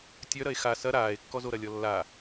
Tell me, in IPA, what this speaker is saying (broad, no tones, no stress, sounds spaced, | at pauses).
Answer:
tʲ œ ɾ ɐ e̯ x a s ɐ ɾ aː e̯ kː ɔ z o ɾ ɐ lʲ ɔ lː a